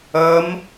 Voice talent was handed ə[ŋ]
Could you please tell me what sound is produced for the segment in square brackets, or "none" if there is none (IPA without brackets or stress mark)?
m